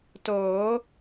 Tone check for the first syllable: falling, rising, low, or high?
rising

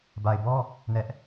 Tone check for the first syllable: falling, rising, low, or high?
low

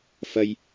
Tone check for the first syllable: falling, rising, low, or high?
high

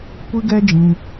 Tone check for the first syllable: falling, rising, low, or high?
high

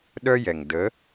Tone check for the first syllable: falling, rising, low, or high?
high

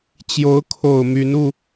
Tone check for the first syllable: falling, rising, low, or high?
rising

